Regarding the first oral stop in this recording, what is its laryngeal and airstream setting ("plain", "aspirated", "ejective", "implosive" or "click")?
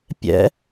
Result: plain